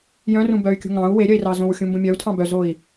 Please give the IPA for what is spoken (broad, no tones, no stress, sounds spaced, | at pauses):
j œ̃ r ũ b œ y̯ kʲ ṳ ŋ ɑ̃ u̯ w e ɾʲ œ i̯ r ɑ z õ w xʲ ũ m b ũ mʲ œ u̯ tʰ ɑ̃ b œ z o i̯